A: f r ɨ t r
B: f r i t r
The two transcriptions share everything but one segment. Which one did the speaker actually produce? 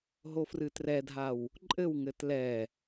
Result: A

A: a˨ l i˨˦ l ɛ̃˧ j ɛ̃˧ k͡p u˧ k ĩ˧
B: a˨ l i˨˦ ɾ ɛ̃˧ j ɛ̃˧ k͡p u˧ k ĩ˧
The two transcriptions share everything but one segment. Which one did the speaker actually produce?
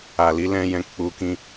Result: A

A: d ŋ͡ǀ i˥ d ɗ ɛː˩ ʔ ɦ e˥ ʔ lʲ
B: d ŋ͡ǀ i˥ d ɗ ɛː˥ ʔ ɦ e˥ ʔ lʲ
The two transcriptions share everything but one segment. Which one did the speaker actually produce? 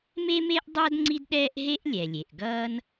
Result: B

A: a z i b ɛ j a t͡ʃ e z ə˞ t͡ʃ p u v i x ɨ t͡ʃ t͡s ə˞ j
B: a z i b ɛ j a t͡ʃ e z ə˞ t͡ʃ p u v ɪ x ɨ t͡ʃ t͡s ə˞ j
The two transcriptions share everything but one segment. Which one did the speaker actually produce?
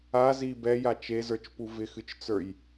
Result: B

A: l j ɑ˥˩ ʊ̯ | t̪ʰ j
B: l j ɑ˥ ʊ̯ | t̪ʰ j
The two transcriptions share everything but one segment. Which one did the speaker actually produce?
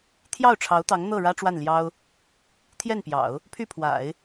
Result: B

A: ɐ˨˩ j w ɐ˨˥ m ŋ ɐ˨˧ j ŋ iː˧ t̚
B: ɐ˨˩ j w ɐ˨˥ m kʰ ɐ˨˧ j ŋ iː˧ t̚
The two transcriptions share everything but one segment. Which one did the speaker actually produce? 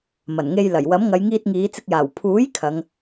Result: A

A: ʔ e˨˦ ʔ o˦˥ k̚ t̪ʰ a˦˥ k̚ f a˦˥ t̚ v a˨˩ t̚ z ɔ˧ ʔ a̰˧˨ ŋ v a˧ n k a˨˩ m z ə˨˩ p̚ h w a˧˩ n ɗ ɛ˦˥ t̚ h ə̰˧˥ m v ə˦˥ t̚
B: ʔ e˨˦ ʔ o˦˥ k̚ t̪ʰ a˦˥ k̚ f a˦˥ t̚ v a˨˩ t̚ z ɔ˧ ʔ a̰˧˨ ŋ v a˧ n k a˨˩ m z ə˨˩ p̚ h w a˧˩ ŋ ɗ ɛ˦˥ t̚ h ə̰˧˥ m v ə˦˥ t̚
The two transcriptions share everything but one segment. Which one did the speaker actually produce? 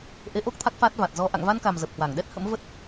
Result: B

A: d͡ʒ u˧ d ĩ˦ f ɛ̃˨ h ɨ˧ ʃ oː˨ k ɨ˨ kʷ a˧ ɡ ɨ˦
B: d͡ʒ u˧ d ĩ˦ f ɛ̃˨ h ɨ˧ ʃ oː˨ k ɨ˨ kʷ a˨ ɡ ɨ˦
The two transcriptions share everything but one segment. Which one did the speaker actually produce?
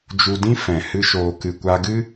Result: A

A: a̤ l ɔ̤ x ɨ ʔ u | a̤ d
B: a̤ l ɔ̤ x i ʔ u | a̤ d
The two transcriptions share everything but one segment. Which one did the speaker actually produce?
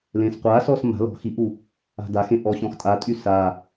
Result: B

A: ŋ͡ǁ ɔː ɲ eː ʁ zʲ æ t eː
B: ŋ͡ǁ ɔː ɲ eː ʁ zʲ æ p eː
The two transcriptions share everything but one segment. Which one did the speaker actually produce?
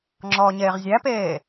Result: B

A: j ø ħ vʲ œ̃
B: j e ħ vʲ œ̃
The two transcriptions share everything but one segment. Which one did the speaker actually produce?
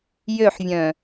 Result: A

